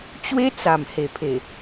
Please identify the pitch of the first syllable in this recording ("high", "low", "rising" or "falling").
high